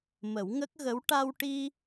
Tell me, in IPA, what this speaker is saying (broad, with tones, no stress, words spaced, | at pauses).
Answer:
mə˨˩˦wŋə˦˥k̚ɣə˧˥w ʈa˧wʈi˧